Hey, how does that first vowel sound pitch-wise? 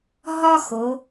high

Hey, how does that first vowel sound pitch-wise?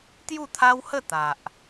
falling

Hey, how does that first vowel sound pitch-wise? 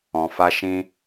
low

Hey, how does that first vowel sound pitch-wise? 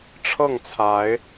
falling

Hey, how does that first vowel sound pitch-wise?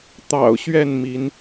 low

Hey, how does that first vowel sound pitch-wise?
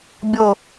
falling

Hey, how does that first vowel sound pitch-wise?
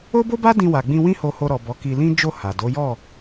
high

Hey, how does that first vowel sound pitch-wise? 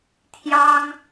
high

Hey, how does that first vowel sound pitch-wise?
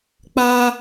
high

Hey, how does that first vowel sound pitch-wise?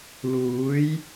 rising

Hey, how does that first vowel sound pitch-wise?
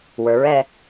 rising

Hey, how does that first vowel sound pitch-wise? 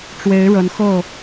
rising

